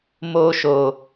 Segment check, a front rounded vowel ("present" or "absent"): absent